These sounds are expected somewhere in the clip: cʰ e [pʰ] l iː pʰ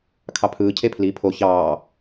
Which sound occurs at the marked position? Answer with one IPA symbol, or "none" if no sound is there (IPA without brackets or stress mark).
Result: pʰ